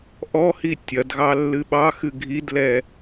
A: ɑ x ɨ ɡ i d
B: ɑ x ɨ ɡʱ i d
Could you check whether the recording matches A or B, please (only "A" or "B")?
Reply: B